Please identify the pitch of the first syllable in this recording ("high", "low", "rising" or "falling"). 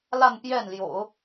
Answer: falling